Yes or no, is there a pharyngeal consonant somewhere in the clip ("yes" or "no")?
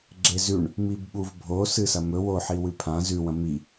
yes